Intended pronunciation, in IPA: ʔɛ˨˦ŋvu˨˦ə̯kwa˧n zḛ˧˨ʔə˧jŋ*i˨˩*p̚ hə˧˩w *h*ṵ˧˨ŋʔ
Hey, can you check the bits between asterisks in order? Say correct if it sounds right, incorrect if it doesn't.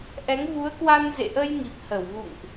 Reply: correct, incorrect: ɣ

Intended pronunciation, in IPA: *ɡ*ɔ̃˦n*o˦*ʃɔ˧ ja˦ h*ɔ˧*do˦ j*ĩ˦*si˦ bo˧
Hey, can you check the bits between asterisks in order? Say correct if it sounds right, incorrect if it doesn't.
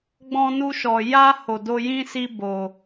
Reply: incorrect: ɡ͡b, incorrect: u˦, incorrect: o˧, correct

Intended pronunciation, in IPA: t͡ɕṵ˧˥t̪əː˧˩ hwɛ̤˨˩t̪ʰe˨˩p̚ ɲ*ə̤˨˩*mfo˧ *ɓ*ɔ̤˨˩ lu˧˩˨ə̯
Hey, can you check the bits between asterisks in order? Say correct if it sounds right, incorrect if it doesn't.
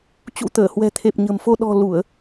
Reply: correct, incorrect: ɗ

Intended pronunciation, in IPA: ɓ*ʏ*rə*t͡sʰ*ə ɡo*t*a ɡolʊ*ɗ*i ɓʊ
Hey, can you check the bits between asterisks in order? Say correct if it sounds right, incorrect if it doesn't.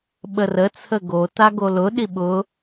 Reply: incorrect: ə, correct, correct, correct

